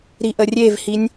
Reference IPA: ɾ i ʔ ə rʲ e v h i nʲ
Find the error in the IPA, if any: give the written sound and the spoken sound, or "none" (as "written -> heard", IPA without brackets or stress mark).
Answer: none